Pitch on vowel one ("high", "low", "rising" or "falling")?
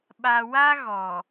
low